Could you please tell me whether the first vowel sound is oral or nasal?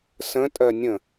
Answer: nasal